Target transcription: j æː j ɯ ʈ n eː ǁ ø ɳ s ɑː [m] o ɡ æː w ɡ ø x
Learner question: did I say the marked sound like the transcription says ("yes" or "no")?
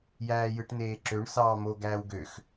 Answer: yes